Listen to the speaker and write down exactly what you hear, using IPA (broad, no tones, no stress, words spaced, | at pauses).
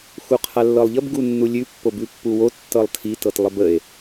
xuqʰalːɤlˠʎəb ɡunːulʲʉ pːobʉpːuwo tːɤlˠtʰi tɤtlˠəbəe̯